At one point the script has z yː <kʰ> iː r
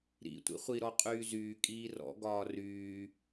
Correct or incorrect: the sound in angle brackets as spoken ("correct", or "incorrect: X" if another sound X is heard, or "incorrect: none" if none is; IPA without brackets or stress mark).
incorrect: kʼ